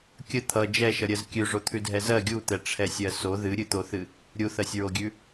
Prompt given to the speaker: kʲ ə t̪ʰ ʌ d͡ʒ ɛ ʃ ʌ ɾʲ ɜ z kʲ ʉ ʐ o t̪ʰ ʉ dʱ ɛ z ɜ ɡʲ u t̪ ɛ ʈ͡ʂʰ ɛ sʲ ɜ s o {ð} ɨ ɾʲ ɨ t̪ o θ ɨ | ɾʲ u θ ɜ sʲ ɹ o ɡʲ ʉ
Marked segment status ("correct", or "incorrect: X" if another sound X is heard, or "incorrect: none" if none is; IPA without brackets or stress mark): correct